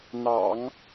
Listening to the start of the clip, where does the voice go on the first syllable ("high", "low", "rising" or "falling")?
low